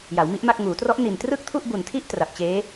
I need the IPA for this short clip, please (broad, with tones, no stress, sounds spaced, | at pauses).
j a˩˦ w m i˦˥ ʔ m a˥˩ k̚ ŋ uː˩˦ t r ɔ˦˥ ʔ n i˨˩ n t r ɯ˥˩ k̚ tʰ u˥˩ ʔ b u˨˩ n tʰ i˥˩ ʔ t r a˨˩ p̚ t͡ɕ eː˦˥